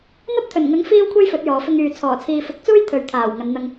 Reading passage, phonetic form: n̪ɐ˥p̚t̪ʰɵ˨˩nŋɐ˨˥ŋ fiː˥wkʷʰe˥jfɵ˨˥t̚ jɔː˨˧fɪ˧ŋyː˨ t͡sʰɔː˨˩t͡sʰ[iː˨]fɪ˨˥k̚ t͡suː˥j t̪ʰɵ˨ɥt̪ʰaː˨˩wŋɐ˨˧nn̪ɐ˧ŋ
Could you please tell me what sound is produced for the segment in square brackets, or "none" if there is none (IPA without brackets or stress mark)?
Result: iː˨